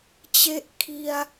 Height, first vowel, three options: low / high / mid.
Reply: mid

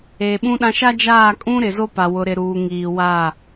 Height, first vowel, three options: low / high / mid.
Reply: mid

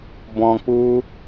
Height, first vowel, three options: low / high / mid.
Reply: mid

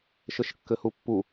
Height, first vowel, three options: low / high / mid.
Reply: mid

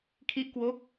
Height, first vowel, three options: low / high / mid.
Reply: high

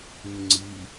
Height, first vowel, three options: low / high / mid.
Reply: high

